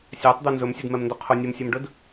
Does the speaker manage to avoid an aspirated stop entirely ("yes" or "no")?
no